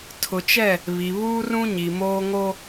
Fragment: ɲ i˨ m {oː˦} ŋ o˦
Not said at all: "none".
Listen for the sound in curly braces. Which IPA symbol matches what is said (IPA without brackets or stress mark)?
oː˦